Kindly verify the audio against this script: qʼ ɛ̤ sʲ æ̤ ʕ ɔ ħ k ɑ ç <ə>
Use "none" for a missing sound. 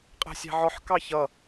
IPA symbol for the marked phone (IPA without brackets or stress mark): ʌ